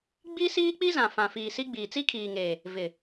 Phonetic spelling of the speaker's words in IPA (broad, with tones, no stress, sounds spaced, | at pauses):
ɡ͡b i˦ s iː˦ k͡p i˦ z ã˨ f ã˨ f iː˨ s i˦ ɡ͡b iː˨ t͡s i˦ kʰ iː˨ ŋ eː˨ | v ɪ˨